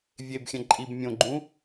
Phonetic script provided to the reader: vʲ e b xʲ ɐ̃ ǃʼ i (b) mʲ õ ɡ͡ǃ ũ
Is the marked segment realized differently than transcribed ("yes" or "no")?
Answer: no